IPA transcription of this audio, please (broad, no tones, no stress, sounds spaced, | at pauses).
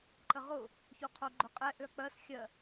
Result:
ǃ ə ʁ ʊ | ç o qʰ o ɡ͡ǃ ʊ qʼ ɛ ʔ ø ɐ̯ k͡p ɜ s xʲ ɜ